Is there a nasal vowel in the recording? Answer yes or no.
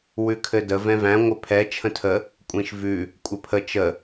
yes